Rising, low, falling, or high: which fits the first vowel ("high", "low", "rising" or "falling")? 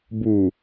low